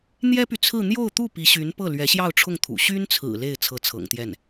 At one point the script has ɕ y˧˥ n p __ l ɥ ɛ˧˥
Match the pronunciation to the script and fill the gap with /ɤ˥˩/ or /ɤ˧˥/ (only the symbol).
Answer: ɤ˥˩